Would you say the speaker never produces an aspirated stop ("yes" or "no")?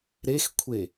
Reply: no